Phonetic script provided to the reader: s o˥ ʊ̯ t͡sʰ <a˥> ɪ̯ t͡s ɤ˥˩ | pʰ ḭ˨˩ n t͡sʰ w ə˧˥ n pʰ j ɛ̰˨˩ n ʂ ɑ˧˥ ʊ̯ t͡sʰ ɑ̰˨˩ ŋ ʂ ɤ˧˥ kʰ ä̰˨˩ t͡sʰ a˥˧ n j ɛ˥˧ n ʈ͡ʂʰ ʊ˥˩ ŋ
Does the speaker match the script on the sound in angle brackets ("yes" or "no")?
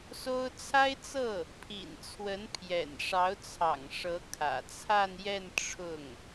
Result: yes